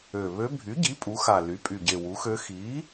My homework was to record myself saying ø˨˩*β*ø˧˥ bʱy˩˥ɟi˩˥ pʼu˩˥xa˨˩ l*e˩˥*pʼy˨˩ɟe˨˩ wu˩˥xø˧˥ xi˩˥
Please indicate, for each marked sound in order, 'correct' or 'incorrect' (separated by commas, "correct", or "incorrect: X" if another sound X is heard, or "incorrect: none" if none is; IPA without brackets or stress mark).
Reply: correct, incorrect: y˩˥